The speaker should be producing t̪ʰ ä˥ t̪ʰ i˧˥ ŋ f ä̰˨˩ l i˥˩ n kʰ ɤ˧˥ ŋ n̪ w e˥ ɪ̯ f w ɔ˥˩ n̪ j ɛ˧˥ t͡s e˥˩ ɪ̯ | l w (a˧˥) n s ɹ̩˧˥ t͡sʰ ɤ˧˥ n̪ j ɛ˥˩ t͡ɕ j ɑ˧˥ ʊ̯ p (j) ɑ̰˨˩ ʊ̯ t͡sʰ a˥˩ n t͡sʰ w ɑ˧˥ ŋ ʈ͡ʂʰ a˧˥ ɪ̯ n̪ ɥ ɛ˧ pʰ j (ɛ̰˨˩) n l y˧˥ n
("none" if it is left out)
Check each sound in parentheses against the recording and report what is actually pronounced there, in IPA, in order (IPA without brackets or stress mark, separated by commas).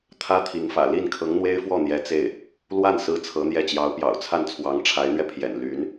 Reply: a˥˩, j, ɛ̰˨˩